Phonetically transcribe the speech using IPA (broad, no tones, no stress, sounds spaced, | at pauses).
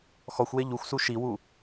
x ɔ xʷ w e ʎ u xʷ s u ʃ i w u